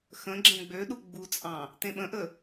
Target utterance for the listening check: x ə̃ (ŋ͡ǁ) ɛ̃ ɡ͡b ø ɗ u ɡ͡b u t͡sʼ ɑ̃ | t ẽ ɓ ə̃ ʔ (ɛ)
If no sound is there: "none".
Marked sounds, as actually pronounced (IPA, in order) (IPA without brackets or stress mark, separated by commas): ɡ͡ǁ, ə